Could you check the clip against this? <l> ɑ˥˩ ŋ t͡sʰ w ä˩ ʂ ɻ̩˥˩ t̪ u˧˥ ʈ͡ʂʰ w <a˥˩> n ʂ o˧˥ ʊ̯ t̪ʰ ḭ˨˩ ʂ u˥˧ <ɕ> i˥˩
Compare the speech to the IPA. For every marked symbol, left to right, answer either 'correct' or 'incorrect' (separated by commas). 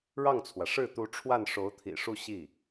incorrect, correct, correct